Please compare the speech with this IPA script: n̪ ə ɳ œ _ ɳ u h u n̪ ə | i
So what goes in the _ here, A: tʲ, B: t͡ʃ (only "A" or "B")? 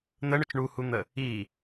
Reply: B